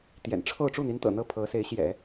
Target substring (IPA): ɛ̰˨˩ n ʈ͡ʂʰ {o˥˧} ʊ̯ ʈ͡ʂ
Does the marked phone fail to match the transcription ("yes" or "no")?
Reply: no